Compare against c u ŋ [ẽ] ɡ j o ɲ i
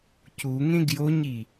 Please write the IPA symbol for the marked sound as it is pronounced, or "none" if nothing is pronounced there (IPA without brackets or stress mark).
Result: ẽ